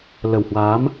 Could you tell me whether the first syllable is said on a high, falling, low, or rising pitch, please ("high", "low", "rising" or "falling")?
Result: low